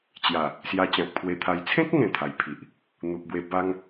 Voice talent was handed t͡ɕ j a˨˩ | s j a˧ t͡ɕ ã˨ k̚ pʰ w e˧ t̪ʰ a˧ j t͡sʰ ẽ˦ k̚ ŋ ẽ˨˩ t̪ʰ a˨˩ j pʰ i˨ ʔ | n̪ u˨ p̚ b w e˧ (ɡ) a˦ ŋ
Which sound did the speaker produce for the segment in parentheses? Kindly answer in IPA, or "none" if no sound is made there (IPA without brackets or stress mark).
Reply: b